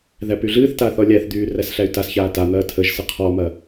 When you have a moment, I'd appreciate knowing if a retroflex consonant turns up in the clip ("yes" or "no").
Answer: no